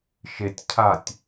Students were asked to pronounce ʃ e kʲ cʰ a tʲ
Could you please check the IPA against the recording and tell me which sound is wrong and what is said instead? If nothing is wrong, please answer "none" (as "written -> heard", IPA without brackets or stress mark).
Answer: kʲ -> tʲ